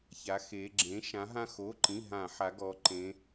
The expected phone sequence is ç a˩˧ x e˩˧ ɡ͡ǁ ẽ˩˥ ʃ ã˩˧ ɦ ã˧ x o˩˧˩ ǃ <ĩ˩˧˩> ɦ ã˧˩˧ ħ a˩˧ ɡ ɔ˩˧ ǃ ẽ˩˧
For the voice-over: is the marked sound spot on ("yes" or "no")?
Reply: yes